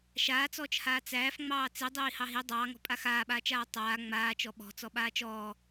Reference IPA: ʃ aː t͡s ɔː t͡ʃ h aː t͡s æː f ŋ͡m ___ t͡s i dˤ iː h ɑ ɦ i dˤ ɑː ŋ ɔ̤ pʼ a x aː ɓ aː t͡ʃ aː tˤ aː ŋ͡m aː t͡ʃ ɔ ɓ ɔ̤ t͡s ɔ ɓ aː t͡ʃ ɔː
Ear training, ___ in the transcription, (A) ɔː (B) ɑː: B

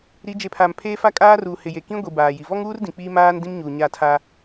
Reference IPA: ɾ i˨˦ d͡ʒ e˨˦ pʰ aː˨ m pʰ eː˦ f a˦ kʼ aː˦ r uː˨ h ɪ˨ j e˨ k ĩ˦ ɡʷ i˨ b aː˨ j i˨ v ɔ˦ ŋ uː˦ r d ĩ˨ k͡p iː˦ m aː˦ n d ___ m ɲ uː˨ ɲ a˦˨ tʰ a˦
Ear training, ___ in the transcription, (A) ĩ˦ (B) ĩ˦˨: A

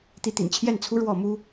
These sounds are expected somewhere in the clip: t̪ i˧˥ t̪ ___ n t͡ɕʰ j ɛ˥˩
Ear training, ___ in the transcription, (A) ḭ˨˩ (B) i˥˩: A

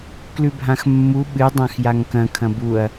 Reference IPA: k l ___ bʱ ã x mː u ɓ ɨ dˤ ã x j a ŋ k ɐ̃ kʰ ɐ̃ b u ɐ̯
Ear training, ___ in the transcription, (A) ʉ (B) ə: A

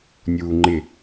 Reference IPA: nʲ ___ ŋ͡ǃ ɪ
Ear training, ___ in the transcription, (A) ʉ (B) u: B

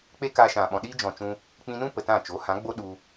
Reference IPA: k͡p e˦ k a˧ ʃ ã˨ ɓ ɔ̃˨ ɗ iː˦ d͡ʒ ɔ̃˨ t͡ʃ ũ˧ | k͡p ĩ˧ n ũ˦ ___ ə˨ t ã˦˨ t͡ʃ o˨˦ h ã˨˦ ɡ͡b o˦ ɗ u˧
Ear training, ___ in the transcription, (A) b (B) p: B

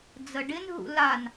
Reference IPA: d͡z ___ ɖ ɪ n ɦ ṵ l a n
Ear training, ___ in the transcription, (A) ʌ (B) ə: B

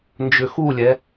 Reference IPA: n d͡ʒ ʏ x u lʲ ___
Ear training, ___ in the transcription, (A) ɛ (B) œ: A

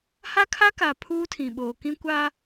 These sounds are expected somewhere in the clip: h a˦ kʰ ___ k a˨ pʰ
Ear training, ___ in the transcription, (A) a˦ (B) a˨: A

